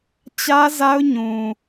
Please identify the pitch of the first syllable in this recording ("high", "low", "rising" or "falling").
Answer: high